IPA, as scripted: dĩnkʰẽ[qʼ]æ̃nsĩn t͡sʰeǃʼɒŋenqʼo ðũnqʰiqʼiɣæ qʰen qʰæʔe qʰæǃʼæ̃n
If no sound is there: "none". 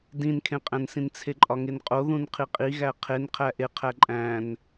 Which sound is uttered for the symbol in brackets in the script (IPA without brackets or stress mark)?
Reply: qʼ